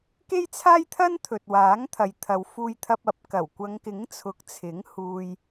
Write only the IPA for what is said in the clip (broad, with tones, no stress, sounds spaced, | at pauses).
k e˥ j t͡sʰ aː˥ j t̪ʰ ɐ˥ n t̪ʰ ɵ˨ t̚ w aː˨˥ ŋ t̪ʰ ɐ˨ j t̪ʰ ɐ˨˧ w f uː˧ j t̪ʰ ɐ˧ p̚ ɐ˨˥ p̚ k ɐ˨˩ w kʷ ɐ˨˧ ŋ k ɪ˨˥ ŋ t͡sʰ ʊ˨˥ k̚ t͡sʰ ɪ˨˥ ŋ h uː˧ j